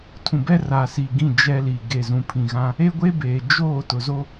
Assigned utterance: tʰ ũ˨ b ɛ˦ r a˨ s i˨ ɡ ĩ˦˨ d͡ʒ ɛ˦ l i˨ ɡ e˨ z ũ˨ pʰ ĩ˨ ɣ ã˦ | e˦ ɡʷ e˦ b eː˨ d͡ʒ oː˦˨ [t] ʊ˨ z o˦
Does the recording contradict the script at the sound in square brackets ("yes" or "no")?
no